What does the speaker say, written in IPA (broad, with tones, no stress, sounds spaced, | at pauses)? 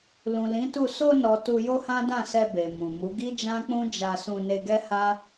l ũ˨ l ĩ˨˦ t u˦˨ s o˧ n ɔ˨ t u˧ j o˦ h ã˦ d ã˦˨ s ɛ˧ b e˨ m ũ˨ m u˨˦ ɡ i˦ d͡ʒ ã˦ k͡p ũ˦ d͡ʒ a˧ s ũ˧ n e˧ ɡ ɛ˦ h a˦